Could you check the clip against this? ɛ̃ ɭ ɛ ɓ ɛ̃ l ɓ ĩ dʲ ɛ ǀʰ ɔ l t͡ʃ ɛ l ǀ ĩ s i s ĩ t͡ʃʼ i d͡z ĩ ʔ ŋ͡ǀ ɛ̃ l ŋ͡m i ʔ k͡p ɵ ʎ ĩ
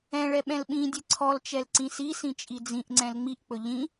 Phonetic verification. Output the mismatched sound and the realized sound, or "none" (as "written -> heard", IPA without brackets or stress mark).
none